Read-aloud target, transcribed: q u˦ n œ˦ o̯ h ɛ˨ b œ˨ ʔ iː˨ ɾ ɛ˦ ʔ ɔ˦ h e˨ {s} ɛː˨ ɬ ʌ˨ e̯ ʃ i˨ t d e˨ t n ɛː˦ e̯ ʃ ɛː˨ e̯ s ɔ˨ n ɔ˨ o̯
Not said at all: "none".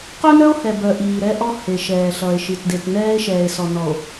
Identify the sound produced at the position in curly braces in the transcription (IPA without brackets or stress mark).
ʃ